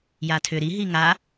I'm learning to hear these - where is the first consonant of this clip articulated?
palate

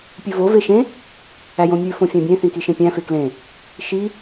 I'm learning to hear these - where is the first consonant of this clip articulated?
lips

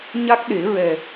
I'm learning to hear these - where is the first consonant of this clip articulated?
palate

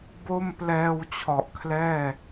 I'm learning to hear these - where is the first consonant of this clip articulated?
lips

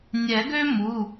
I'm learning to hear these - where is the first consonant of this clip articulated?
tongue tip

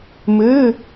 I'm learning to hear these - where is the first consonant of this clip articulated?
lips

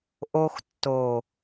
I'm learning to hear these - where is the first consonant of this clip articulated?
throat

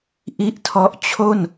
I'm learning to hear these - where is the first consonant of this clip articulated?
throat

